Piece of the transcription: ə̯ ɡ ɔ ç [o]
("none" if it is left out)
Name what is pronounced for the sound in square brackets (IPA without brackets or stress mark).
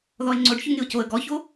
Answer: o